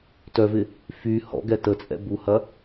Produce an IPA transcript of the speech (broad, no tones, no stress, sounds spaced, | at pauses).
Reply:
t œ v ɪ | f y h ɔ̰ ɡ ɛ t ə t͡sʼ ɛ̰ b u h ɐ